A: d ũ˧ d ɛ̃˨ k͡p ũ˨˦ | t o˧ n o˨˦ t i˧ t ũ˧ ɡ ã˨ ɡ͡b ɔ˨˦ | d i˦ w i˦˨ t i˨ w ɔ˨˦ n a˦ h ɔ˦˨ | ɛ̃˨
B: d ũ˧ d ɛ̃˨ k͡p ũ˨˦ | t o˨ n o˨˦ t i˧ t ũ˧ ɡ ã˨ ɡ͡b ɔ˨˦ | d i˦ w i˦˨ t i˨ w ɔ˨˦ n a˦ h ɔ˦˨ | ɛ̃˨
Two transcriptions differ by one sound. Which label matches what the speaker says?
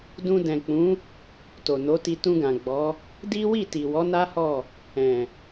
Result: B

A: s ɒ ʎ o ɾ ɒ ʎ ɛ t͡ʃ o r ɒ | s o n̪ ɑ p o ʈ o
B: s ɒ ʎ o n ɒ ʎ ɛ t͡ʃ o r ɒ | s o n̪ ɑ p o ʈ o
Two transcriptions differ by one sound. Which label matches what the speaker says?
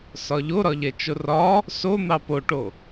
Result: A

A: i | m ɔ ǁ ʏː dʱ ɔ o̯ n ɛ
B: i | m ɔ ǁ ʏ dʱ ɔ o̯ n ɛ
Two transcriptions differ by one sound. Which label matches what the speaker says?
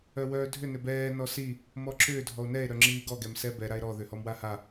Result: A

